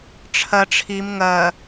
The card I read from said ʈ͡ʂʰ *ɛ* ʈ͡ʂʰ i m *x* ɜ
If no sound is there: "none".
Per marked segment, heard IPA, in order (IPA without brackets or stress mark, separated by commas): ɜ, ŋ